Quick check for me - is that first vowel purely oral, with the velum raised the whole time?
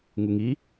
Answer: yes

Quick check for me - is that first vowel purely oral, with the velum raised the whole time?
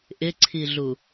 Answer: yes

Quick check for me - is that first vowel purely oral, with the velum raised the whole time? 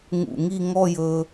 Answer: yes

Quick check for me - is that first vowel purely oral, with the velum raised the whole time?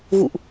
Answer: yes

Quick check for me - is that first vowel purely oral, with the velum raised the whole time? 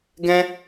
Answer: no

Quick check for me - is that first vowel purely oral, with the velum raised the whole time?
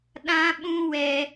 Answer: no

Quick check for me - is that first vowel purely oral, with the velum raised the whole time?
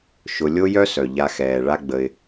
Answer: yes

